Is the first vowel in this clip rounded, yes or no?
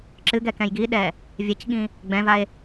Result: no